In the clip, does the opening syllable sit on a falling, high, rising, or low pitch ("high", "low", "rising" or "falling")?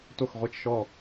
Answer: falling